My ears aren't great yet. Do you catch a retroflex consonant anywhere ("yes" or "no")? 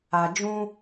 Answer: no